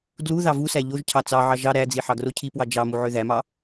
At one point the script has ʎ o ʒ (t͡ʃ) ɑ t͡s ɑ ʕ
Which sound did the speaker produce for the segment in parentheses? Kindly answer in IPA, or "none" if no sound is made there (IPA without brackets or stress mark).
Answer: cʰ